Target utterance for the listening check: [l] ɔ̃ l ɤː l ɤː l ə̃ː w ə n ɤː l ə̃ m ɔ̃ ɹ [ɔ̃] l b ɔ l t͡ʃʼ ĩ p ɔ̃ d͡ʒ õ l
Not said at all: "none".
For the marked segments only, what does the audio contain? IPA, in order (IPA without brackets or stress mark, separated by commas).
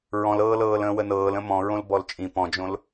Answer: ɹ, õ